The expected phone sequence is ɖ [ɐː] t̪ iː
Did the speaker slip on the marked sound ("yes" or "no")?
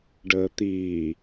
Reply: yes